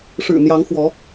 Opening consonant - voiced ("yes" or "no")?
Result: no